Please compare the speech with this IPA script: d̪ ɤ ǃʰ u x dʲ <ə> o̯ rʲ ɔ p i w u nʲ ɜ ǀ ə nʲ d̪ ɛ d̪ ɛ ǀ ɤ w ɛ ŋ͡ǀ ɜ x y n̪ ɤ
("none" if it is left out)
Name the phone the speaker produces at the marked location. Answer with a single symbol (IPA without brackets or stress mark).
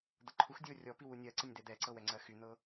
ə